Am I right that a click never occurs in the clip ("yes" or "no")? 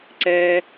no